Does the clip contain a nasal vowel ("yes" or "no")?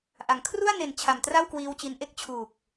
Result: no